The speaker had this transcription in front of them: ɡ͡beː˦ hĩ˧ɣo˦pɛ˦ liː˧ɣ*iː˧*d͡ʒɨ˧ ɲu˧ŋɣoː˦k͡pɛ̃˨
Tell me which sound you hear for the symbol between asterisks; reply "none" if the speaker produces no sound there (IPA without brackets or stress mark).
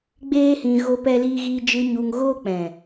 iː˧